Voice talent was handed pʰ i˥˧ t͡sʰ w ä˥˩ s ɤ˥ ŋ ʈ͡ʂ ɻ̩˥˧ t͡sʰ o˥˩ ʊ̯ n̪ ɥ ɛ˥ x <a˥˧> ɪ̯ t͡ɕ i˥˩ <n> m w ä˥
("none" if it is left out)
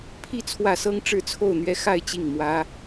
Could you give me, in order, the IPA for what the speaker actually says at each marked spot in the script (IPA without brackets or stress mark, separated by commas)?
a˥˧, ŋ